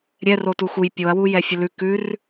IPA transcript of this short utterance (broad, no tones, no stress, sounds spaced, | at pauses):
ɾʲ ɛ r o t u x u j pʲ o ɐ̯ w u j ɛ fʲ ə l ʉ k ʉ r